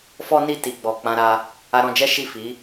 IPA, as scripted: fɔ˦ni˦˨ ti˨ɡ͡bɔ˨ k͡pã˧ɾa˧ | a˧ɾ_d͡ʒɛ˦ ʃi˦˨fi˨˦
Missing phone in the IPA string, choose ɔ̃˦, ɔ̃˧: ɔ̃˧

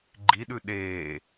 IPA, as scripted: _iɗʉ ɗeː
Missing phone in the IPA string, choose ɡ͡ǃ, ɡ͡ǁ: ɡ͡ǃ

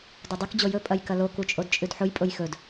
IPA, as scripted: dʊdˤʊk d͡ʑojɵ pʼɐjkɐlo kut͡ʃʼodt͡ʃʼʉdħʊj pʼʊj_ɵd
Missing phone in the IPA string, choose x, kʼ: x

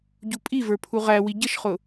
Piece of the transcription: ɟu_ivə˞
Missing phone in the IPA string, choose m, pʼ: pʼ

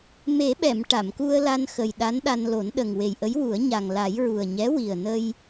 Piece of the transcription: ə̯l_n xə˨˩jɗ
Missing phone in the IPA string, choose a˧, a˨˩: a˧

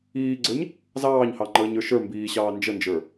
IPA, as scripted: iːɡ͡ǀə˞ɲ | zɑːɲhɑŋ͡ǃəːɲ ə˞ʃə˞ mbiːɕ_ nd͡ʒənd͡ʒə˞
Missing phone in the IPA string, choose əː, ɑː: ɑː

